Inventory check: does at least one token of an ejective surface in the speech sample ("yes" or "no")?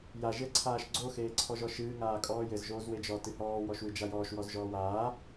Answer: yes